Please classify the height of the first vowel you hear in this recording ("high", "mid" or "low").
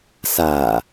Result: low